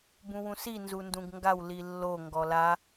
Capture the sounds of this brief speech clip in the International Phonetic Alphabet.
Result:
b ũ w ũ s i n z u n d ũ ɡ ŋ ɡ a w l i lː o ŋ ɡ ɔ l a

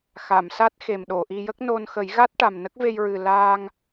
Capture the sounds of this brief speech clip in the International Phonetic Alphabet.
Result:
x a˨˩˨ m s a˦˥ t̚ x e˨˩ m ɗ o˨˩˨ ʔ i˧ j ə˦˥ k̚ n o˧ n x ə˨˩˦ j ɣ a˦˥ t̚ ʈ a˨˩ m n ə˦˥ k̚ v e˧ j ɹ ɨ˨˩ l aː˧ ŋ

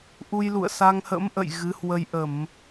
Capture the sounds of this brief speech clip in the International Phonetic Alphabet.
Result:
ʔ u˧ j l ṵ˧˨ ə̯ s a˧ ŋ h ə̰˧˥ m ʔ ə̰˧˨ j ɣ ɨ˨˦ h w ə˧ j ʔ ə˧˩˨ m

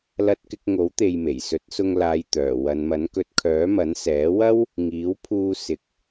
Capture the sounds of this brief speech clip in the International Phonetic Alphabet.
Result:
l ɐ˧ t̚ k ɪ˧ k̚ ŋ o˨˥ w t̪ e˨ j m e˨˩ j s ɵ˨˥ t̚ s ʊ˧ ŋ l aː˨˧ j t̪ œː˨˩ w ɐ˨˧ n m ɐ˨˥ n k ɵ˨˥ t̚ kʰ œː˨˥ m ɐ˨˥ n s ɛː˨˥ w ɐ˥ w | ŋ iː˨˥ w pʰ uː˧ s ɪ˨ k̚

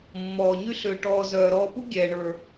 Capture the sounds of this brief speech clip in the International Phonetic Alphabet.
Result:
mː ɔː˩ ɲ y˥ ɬ ʏː˨ ʈ ɔː˨ z œː˩ ɾ ɔː˨ p u˥ ɡʲ ɛː˩ ɳ ə˞˩

